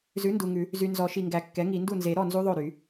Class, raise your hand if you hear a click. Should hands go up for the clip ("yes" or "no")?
no